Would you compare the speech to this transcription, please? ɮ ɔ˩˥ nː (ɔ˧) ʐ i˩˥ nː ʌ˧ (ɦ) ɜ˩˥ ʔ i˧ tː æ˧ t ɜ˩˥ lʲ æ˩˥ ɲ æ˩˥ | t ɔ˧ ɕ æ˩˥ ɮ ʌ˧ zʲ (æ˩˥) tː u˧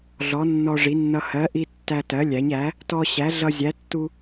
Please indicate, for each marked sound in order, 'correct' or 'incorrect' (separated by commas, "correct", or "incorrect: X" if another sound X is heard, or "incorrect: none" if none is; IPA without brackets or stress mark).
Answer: correct, incorrect: h, correct